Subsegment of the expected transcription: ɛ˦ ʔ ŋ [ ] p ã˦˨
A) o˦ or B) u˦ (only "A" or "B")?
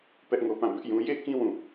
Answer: A